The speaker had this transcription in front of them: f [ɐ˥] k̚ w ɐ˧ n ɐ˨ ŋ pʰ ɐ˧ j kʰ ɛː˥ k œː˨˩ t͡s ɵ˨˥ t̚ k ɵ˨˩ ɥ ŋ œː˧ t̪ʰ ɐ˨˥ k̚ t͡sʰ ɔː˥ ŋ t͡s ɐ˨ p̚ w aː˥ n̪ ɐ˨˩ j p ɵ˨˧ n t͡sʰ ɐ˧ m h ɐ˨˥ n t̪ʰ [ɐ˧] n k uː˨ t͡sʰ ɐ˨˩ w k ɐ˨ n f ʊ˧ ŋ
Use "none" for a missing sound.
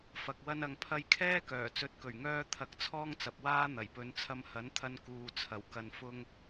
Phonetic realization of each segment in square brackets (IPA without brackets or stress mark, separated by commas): ɐ˨, ɐ˧